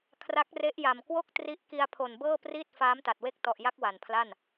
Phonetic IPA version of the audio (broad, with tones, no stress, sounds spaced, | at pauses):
kʰ r a˦˥ k̚ r e˦˥ ʔ j a˨˩ m k w o˥˩ k̚ t r i˦˥ ʔ k i˧ a̯ pʰ o˨˩ n b ɤː˥˩ p r iː˥˩ t̚ f aː˦˥ m t a˨˩ t̚ w e˥˩ k̚ t ɔ˨˩ ʔ j a˦˥ k̚ w a˨˩ n pʰ l a˥˩ n